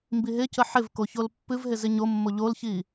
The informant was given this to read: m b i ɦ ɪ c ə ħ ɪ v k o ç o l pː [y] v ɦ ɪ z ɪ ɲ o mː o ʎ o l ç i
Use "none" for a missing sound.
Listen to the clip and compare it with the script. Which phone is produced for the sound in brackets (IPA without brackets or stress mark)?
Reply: ɨ